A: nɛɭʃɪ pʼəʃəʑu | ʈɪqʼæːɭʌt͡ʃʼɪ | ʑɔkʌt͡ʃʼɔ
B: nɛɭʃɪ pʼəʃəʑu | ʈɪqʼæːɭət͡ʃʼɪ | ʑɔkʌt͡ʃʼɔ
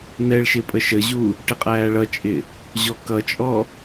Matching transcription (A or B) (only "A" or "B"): A